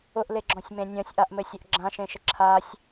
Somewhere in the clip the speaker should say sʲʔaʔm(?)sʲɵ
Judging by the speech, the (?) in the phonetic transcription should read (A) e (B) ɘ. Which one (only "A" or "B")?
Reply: B